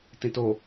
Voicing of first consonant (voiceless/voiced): voiceless